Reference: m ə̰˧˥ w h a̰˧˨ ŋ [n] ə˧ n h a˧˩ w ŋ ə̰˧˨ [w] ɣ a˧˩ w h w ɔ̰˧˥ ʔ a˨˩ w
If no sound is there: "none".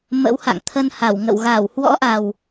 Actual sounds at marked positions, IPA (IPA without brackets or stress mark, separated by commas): t̪ʰ, w